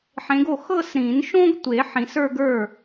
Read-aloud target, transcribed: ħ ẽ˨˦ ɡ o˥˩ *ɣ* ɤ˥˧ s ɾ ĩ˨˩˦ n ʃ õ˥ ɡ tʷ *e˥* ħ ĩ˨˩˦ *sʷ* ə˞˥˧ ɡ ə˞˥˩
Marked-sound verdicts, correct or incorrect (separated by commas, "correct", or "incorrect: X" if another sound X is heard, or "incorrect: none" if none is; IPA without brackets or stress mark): incorrect: x, incorrect: e˨˩˦, incorrect: s